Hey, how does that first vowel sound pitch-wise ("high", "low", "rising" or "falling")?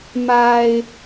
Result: low